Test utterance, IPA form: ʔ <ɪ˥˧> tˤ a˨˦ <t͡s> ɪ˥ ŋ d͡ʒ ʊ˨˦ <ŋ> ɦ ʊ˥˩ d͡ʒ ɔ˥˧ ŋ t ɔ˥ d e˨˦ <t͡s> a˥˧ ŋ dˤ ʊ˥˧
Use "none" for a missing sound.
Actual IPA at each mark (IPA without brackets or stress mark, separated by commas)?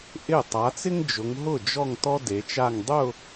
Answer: ɪ˥˩, t͡s, ŋ, t͡ʃ